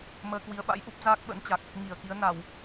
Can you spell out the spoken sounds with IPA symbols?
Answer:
m əː˧ k w i˨˦ ə̯ ɓ a̰˧˥ j ʔ u˦˥ p̚ z aː˦˥ k̚ ɓ ə̰˧˥ n t͡ɕ a˨˩ k̚ | ŋ i˧˩ ə̯ k i˨˦ ə̯ n a˧˩˨ w

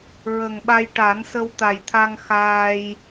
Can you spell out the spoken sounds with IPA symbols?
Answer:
ɹ ə˨˩ ŋ ɓ a˧ j ʈ a˨˩˦ n s ə˧ w t̪ a˨˩ j t̪ʰ a˧ ŋ x aː˧ j

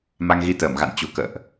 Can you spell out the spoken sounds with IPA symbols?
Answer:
m a˧ ŋ ɣ i˧ t̪ əː˧˩ m ɣ a̰˧˨ n t͡ɕ ṳ˨˩ k ə̰ː˧˨ ʔ

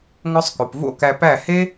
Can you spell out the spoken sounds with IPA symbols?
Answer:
ŋ ɔ˧ sˤ k o˨ p v o̰˦ k æ˧ p æ˦˨ h e˦

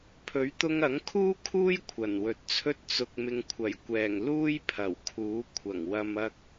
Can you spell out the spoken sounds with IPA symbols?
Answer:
pʰ ɵ˨˥ ɥ t̪ ʊ˧ ŋ ɐ˨˥ ŋ kʰ uː˥ kʰ uː˥ j kʷʰ ɐ˨˩ n w ɵ˨˥ t̚ t͡sʰ ɵ˥ t̚ t͡s ʊ˨ k̚ m ɪ˨ ŋ kʷʰ ɐ˨˩ j kʷ ɛː˨˩ ŋ l uː˥ j pʰ ɐ˨˩ w kʰ uː˨˥ kʷʰ ɐ˨˩ ŋ w ɐ˨ m ɐ˨ k̚

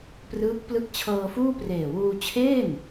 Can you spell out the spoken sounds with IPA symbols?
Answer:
p r ɯː˦˥ k̚ p l ɯ˥˩ k̚ t͡ɕʰ ɤː˧ f uː˥˩ p r eː˨˩ w uː˧ t͡ɕʰ eː˥˩ n

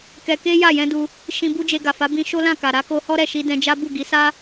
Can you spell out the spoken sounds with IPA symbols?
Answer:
k ɛ˧ k e˦ j a˦˨ j ɛ̃˧ d u˧ | ʃ ĩ˧ b u˦ d͡ʒ e˧ ɡ a˨ f a˨˦ b ĩ˧ ʃ o˦ l ã˦˨ k a˨ ɾ a˨˦ k o˧ h ɔ˦ ɾ ɛ˦˨ ʃ i˧ d ɛ̃˧ d͡ʒ a˦ b u˦˨ ɡ i˨˦ s a˦

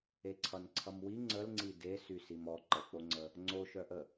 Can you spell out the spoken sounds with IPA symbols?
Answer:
e ǀʰ ʌ n ǀʰ ʌ m w i ŋ͡ǀ ə l ŋ͡ǀ i d e s y s i m ɔ ǃ ə k͡p o ŋ͡ǀ ə | ŋ͡ǀ o ʃ œ ʔ ə

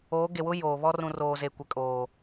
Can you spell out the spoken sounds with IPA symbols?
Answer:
oː˨˦ ɡ e˨ w ʊ˦ j oː˨ β ɔ˦ r ũ˨ r oː˨ z e˨ kʷ ɛ˨ kʼ oː˨

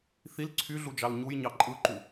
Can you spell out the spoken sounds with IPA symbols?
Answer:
θ i l ǀʰ y ɮ u d͡ʒ ɑ l ɲ u j ɲ ɑ ǃʼ ɯ ǃ u

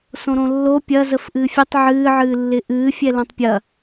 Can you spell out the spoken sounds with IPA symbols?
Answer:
s õ ɾ õ lː o pʲ ɐ z ə f ʔ ɨː fʲ ɨ tˤ ʕ ɨː ʕ ɨː lː ɪ ʔ ɨː fʲ ɛ l õ tˤ pʲ ɐ

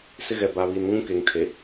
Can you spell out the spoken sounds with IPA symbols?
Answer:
s ɪ˦ ɣ ɛ˨ b a˨ β i˨ n ŋ ũ˦ k e˨ ŋ tʰ e˨

